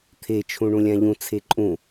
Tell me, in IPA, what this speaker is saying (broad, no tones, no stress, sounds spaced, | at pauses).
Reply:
t̪ʰ e t͡ʃʰ ũ ɳ ũ lʲ ã ʎ ũ t͡sʰ e ǃʼ ũ